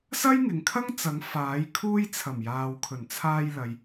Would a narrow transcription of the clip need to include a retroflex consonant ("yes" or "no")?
no